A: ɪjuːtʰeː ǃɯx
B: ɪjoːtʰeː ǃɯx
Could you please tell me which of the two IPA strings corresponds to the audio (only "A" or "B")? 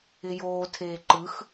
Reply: B